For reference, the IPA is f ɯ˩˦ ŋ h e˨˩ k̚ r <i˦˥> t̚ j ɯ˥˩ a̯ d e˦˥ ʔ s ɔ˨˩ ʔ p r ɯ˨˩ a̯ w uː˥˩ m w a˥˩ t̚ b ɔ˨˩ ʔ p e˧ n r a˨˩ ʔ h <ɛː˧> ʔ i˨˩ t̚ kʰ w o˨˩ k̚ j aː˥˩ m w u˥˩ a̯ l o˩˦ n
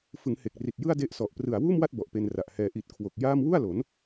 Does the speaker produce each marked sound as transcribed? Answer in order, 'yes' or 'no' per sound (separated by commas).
no, yes